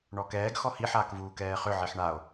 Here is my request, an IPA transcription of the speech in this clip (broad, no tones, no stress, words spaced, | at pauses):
ɳɔkɛːɡ xɔhi ħaːkvuːkɛːχʏ ʕiħɳao̯